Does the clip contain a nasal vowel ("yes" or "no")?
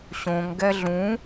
yes